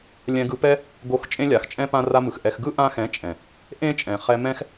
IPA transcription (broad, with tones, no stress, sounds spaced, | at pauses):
lʲ ɛ̃˧ ɡ ɯ˧ p ɛ˦ | ɡ o˧ x t͡ʃʼ ẽ˦ lʲ a˨ x t͡ʃʼ ɛ̃˦ p ã˧ r a˧ m ɯ˨ x ʔ ɛ˧ x ɡ ɯ˦ ʔ ã˧ x ɛ̃˨˦ t͡ʃʼ ɛ̃˨ | ʔ ẽ˦ t͡ʃʼ ɛ̃˨ χ ɛ˧ m ɛ̃˦ x